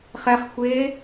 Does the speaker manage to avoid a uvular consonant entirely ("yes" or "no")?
no